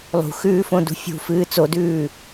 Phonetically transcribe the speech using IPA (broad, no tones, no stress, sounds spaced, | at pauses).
lˠ ṳ x ʉː f õ d ṳ fʲ ṳ f ɨː t͡s o d ʉː